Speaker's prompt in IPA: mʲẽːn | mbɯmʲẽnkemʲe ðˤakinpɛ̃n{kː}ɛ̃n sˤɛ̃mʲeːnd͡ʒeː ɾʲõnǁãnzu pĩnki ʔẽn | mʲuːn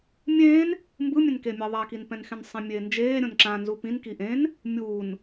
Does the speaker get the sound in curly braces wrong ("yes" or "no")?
yes